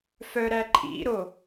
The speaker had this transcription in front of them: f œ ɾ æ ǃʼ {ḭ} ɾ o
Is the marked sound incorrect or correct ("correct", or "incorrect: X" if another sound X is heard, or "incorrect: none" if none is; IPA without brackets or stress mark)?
correct